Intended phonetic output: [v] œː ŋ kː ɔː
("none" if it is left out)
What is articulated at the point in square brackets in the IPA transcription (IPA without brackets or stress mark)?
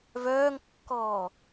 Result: v